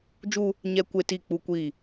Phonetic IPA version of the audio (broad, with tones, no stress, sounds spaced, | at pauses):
d͡ʒ u˦ | ɲ ɛ˦ kʷ e˦ t i˦˨ k͡p u˦ kʷ i˦˨